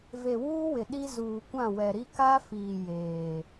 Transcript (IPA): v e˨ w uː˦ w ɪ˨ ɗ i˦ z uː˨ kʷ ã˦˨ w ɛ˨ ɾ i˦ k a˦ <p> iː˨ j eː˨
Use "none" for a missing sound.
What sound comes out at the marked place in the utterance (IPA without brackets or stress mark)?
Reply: f